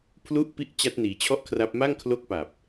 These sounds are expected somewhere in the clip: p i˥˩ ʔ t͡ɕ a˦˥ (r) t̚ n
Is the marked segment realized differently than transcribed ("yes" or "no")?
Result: yes